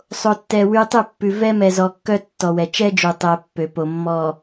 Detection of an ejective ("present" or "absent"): absent